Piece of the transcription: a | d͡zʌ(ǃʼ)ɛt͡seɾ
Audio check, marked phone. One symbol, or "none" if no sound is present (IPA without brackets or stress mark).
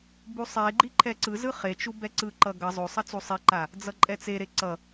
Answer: ǃʼ